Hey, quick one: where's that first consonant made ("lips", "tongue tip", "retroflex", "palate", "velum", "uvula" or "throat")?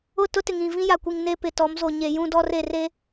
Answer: tongue tip